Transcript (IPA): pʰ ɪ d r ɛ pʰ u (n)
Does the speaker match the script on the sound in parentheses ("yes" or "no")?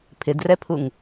no